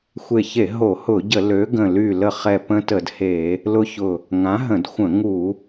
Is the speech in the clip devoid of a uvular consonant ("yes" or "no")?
no